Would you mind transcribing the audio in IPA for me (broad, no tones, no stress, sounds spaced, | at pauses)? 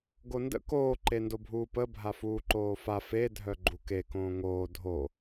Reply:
ɡ o n d ə̰ k oː ǃ e n d o bʱ uː p ə bʱ a f uː ǃ oː f a f e dʱ œ ɡ͡ǃ u k e k õː ŋ oː dʱ o